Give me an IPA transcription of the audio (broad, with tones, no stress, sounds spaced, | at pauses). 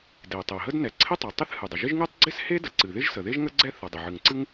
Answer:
d e˩ tˤ e˩ ɦ ə˥ d n ɛ˩ ǀʰ ɪ˥ tˤ ɨ˩ tˤ ɪ˥ θ h ɨ˩ dˤ ə˩ ʒ ɪ˥ ʒ ŋ ɨ˥ tˤ ɡ͡ǀ ɪ˥ s h e˥ d ə˩ ǀ ɨ˩ ð ɪ˥ ʒ s ə˩ ð e˥ ʒ ŋ ə˥ ɡ͡ǀ ɛ˥ θ ə˩ dˤ ɪ˩ ʕ ɨ˩ ŋ ǀ ɨ˥ ŋ